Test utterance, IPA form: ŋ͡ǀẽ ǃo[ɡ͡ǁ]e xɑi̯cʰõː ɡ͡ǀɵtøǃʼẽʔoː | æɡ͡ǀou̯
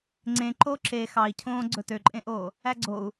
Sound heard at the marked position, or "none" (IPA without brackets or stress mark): ǁ